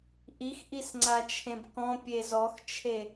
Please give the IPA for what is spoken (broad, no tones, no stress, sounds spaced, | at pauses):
ʔ i x ʔ i s ŋ͡ǀ a t͡ʃʰ ẽ b k ɔ̃ pʲ e z ɔ x t͡ʃʰ e